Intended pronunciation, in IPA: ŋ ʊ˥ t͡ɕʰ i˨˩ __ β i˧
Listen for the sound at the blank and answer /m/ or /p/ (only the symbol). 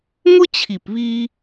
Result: p